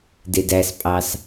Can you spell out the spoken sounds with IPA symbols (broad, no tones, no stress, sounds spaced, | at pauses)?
d e d æ s pʼ ɑ s